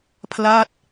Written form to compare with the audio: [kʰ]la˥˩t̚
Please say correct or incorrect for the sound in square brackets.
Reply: incorrect